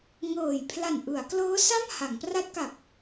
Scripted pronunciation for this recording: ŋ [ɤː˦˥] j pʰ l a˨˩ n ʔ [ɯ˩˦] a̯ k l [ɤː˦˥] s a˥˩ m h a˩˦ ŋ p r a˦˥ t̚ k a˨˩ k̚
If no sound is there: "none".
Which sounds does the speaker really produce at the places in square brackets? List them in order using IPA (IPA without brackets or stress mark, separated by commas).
ɤː˨˩, ɯ˩˦, ɤː˦˥